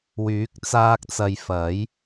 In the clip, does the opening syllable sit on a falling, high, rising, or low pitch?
rising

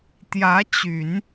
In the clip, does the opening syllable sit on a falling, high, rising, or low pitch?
rising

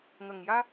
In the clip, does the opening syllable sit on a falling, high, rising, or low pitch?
low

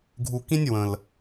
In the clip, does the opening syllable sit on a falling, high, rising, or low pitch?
low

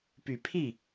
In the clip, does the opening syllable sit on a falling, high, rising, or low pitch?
low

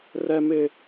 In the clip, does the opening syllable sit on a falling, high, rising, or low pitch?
high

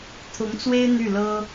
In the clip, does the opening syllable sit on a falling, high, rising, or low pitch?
rising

